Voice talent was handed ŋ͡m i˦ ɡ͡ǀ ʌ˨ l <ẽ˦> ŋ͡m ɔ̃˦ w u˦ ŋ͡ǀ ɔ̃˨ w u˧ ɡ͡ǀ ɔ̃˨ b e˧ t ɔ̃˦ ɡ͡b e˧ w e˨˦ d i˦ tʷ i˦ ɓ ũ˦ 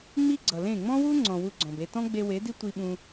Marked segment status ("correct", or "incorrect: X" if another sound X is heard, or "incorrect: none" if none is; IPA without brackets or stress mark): incorrect: ẽ˦˨